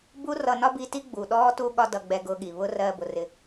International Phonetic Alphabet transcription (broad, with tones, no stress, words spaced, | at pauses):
bu˦ rʌ˧nɒ˦bi˧ti˦ ɡ͡bu˨ɗɔː˦ tu˧ɠɒ˧ dʌ˧ɡ͡bɛ˧ ɡʊː˦ɠi˨ βʊ˦ rɜː˧bʊ˨rɪ˧